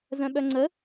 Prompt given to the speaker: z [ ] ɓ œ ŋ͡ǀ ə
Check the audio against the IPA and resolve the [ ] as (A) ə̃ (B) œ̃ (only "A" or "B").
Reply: B